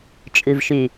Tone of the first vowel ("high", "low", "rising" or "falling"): low